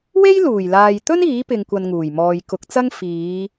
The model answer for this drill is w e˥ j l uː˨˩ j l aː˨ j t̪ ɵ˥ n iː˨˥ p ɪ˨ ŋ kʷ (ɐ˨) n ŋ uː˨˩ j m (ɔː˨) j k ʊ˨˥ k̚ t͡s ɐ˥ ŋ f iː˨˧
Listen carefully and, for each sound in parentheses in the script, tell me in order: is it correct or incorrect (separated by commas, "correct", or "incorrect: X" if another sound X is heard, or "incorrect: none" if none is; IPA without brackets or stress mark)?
correct, correct